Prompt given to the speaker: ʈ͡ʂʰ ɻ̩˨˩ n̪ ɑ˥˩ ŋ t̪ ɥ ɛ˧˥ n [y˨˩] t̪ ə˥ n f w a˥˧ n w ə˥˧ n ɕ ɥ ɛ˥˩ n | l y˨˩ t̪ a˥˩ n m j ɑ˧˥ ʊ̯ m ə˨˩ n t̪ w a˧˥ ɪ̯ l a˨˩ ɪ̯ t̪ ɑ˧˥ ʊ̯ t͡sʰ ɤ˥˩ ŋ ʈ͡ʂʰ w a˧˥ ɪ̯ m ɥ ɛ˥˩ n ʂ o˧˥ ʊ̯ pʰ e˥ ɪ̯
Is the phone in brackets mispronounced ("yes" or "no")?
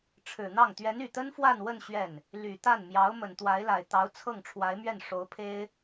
no